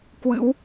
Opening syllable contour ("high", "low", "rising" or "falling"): rising